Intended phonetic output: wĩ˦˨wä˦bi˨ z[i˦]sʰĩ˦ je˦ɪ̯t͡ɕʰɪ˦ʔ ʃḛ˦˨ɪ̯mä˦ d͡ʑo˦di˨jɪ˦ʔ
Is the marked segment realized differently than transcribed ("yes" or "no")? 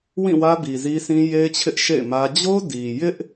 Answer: no